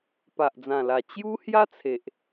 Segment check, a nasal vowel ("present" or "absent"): present